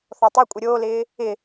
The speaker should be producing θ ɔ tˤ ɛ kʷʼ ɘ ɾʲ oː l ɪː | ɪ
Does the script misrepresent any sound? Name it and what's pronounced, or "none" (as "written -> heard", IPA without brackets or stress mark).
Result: none